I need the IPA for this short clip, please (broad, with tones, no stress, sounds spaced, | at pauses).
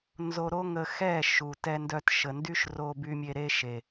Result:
n z o˧ ɾ o˦ ŋ ə˧ x ɛ˦˨ ʃ u˨ t ɛ˧ n d œ˧ t ʃ ə˨ n d y˦ ʃ r o˧ b y˧ mʲ e˧ ɾ e˦ ʃ e˨